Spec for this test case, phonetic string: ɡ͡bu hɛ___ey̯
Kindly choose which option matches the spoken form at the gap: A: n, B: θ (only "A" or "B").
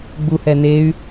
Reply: A